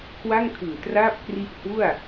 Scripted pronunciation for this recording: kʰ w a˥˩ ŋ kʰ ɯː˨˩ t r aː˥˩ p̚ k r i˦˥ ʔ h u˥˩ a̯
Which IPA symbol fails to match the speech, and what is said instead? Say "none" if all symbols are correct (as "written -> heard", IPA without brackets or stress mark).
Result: none